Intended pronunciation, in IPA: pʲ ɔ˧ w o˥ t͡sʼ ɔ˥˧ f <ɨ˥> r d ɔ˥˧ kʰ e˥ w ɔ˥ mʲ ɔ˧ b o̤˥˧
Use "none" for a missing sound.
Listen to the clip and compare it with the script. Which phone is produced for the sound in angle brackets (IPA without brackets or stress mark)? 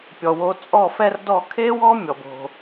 ɛ˥